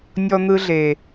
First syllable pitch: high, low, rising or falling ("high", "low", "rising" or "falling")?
high